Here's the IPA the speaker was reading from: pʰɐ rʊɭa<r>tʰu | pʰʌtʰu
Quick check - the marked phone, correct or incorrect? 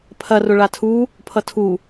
incorrect